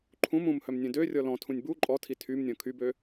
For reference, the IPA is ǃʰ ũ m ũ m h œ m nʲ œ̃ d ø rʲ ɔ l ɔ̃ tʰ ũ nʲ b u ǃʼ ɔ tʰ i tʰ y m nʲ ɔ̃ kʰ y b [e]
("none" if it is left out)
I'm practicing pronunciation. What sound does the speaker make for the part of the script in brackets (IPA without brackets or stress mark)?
ø